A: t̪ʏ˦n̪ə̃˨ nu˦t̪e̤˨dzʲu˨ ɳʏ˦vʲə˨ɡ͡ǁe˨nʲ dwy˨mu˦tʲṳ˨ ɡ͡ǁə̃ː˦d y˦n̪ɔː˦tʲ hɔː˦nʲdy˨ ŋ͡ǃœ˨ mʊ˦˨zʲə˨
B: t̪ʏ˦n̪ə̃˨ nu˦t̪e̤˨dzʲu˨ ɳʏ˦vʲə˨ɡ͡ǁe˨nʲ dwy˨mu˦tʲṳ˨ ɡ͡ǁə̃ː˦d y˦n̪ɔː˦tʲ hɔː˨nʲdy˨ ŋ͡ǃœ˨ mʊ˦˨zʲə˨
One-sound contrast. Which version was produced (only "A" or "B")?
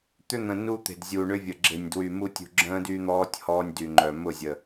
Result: A